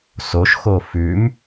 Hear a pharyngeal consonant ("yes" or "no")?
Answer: no